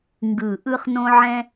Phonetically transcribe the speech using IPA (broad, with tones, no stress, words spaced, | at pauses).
ŋɡɯ˨˩ʔɯ˦χ nõ˦ʕɛ̃˦